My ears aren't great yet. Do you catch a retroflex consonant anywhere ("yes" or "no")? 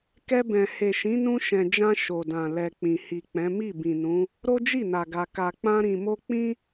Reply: no